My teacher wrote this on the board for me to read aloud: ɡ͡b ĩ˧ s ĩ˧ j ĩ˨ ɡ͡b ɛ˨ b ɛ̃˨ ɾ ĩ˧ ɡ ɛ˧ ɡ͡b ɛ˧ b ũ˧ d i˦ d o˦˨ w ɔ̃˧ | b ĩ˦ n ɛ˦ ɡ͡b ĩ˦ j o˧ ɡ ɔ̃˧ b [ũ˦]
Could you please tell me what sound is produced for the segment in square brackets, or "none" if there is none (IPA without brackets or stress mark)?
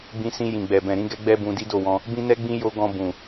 ũ˨